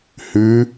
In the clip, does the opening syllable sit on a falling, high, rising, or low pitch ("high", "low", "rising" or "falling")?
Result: rising